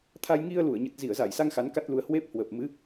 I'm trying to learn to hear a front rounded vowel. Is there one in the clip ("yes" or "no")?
no